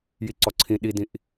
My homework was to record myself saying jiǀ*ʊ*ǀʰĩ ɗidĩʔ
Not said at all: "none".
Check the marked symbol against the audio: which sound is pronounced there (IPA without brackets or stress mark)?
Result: ɔ